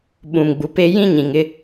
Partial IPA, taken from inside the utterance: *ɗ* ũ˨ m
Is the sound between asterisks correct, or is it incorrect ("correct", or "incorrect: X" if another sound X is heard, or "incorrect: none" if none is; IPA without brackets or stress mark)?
incorrect: ɓ